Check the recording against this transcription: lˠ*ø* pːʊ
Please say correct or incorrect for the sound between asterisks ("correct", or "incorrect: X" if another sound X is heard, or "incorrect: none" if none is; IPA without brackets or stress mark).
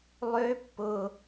correct